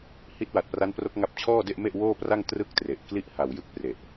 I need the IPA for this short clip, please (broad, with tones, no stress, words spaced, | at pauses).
hi˦˥t̚wa˨˩t̚pra˦˥npro˦˥k̚ ŋa˦˥p̚t͡ɕʰɔː˥˩de˥˩ʔ me˥˩ʔwoː˥˩pra˥˩ŋ trɯ˥˩k̚tre˨˩ʔkli˥˩ʔ ha˨˩wjɯ˦˥k̚pre˨˩ʔ